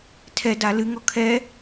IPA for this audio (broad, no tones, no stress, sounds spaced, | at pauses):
tʰ ɛ d a l ɨ ŋ ɔ kʰ ɛ